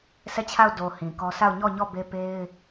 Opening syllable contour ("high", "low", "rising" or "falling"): falling